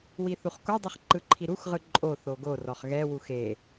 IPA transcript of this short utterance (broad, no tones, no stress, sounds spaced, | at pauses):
w i θ u χ k o dˤ ɯ χ ǃ ɯ ǃʰ i ɾ u x ʁ ɯ ǃʼ o θ o ɡ o r ɔ χ ɣ ɛ w u x e